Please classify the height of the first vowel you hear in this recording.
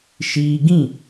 high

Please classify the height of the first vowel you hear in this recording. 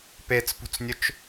mid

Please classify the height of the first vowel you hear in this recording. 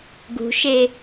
high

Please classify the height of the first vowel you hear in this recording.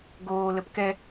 mid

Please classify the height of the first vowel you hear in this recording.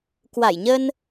low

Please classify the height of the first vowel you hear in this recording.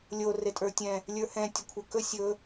mid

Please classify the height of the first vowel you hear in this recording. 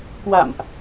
low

